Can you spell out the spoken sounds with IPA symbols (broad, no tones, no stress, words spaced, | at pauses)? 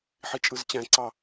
ħit͡ʃʼɯzt͡ɕæ̃ǀɑ